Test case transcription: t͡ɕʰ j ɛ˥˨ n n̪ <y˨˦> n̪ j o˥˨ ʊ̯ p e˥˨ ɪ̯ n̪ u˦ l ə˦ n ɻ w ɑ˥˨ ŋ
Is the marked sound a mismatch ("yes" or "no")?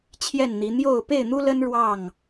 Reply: yes